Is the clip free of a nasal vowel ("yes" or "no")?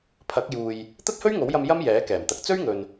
yes